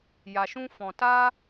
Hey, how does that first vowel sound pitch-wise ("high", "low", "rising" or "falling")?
low